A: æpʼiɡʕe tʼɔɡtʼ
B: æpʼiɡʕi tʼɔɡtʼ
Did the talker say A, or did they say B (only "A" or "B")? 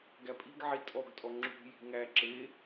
B